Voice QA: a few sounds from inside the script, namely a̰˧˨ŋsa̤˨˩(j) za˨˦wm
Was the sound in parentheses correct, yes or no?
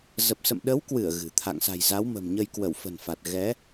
yes